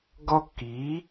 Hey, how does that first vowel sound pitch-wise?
high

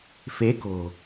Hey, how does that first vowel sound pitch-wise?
rising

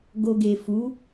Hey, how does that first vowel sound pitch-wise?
low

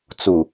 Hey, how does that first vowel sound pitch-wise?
low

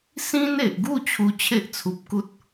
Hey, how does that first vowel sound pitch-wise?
high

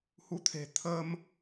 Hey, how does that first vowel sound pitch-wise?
rising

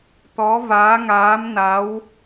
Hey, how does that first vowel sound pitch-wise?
rising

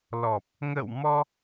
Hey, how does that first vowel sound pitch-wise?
low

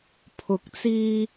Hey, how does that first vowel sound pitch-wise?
rising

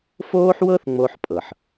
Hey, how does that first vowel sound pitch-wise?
high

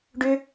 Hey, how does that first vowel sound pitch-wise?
high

